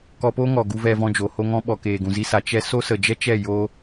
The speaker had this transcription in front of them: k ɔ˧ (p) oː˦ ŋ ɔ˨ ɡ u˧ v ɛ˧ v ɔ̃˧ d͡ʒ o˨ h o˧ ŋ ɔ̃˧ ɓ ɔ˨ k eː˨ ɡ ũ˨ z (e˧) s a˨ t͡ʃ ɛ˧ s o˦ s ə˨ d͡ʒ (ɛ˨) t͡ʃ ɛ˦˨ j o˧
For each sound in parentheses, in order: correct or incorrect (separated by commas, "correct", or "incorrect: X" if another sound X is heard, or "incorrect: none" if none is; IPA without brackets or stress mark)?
correct, incorrect: i˧, incorrect: ɛ˦